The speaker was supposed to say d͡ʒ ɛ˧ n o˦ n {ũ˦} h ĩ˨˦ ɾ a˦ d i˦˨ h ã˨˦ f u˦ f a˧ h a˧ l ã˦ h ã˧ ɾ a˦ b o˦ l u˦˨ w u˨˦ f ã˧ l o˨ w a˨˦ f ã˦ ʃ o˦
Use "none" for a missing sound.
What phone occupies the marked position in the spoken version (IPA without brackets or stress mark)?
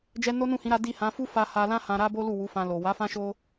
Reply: ũ˦˨